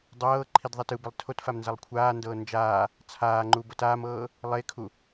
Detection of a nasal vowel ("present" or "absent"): absent